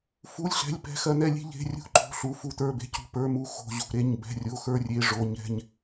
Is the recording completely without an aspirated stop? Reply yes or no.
yes